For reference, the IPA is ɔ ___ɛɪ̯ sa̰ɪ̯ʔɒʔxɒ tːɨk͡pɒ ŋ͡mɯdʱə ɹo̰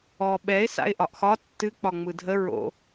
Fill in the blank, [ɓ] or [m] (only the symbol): ɓ